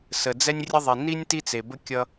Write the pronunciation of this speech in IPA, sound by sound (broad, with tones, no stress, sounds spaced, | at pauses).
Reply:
s ə˩ d͡z ɛ˦ nʲ rʲ ə˦ ðˤ i˩ n i˥ nʲ t i˥ t͡s e˩ b ə˥ kʲ ʌ˦